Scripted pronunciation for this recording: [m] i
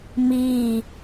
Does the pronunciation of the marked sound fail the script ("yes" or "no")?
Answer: no